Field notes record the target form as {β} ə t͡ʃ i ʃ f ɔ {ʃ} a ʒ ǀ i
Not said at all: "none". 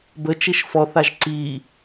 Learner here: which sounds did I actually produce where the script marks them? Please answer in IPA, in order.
b, θ

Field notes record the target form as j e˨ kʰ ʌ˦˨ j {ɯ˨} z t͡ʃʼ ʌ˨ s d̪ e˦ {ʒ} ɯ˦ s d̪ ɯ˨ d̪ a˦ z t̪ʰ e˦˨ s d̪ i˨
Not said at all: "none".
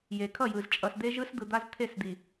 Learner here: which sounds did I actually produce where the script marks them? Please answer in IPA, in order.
ɯ˨, ʒ

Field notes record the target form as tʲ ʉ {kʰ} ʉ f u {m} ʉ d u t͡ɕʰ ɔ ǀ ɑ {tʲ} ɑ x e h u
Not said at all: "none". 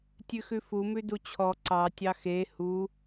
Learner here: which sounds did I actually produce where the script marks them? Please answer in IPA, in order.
x, m, tʲ

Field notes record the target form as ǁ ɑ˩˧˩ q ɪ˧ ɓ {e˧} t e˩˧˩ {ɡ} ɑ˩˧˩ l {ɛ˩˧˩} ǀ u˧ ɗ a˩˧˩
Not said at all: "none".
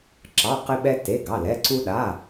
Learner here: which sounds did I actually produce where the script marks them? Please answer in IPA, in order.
ɛ˧, ɡ, ɛ˩˧˩

